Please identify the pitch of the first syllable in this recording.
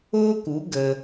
high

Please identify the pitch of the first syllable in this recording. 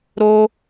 high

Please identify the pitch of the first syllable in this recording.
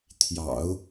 low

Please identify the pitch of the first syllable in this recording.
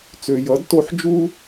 low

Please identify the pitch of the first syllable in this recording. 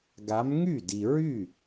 rising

